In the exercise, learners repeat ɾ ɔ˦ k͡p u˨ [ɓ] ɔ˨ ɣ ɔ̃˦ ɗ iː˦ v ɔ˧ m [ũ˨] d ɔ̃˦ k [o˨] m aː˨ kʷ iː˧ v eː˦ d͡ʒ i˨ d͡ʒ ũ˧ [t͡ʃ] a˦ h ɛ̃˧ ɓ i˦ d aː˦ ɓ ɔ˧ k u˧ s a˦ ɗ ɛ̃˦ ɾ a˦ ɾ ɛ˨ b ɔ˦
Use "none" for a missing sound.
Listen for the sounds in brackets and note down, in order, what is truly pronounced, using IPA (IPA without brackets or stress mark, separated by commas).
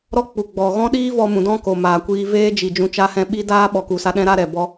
ɡ͡b, ũ˨, o˨, t͡ʃ